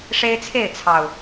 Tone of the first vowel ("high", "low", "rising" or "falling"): high